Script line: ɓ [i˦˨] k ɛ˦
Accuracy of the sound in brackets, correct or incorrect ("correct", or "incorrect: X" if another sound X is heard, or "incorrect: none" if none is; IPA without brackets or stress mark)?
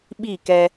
correct